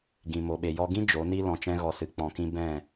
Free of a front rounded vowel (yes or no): yes